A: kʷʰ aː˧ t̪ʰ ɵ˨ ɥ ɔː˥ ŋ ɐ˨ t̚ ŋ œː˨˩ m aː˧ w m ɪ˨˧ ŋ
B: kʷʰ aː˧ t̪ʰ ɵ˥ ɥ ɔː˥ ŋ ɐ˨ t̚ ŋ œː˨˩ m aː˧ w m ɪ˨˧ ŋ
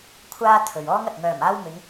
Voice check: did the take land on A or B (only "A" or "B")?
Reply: A